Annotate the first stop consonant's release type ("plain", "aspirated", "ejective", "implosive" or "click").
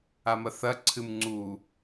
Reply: click